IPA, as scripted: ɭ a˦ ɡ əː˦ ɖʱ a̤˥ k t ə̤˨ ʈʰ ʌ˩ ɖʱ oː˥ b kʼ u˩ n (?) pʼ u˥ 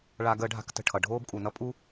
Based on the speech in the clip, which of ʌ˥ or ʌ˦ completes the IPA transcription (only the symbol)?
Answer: ʌ˥